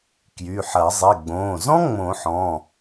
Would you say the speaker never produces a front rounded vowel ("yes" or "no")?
no